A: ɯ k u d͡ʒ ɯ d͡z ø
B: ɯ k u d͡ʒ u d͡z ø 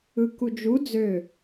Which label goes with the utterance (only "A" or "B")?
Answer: B